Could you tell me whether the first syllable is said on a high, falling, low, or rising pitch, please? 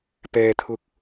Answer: low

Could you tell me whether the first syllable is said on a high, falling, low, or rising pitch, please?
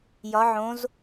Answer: rising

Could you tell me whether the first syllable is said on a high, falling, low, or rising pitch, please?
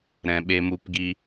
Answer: low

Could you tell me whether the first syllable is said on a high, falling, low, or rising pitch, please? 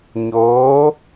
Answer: rising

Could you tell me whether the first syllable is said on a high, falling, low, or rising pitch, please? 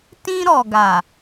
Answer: high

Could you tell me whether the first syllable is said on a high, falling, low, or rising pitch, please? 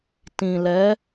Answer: low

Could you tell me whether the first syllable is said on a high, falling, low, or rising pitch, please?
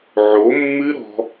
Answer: rising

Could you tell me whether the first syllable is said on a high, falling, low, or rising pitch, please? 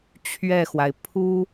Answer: falling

